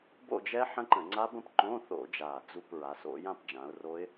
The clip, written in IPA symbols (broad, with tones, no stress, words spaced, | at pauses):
bo̰˥˧d͡ʒɛ˦˥ ħə̃˦˥ǃə̃˧˩˧ ŋ͡ǀa˦˥bə̃˥˧p ǃõ˧˥˧θo̰˧˩˧d͡ʒa˨˩ d͡zu˥˧pɹa˨˦s o̰˦˥ jã˥˧pd͡ʒã˨˦ʊ̯ro˦˥ɪ̯